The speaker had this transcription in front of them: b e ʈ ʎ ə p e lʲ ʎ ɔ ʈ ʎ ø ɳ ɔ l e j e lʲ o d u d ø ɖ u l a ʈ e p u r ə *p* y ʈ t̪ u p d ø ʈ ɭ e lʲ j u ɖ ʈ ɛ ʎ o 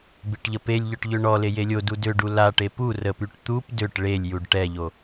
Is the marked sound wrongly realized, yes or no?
no